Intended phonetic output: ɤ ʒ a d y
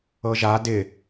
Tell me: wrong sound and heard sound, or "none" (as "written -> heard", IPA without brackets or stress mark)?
y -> ɪ